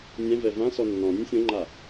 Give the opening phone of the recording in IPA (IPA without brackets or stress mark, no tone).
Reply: nʲ